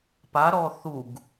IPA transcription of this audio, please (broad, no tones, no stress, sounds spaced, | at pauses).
p a ɾ ɔ θ u ɡ